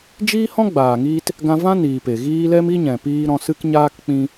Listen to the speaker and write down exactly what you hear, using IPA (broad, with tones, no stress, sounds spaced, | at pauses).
d͡ʒ iː˦ h ɔ̃˦ ɡ͡b aː˨ ŋ iː˧ t | ɡ ã˧ v ã˦ n iː˨ p e˨ ɣ iː˦ l ɛ˦ m i˦ ɲ ɛ̃˨ p iː˦ ɾ ɔ̃˦ s ɨ˦ k ɲ aː˦ k k͡p ĩ˦